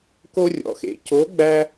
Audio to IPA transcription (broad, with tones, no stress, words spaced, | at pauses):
ko˥rʲɔ̰˧˥xḛ˧˥ co˧˥ ɡ͡bæ˥